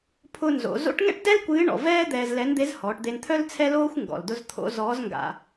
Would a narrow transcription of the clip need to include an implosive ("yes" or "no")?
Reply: no